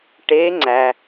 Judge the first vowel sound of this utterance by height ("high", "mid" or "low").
mid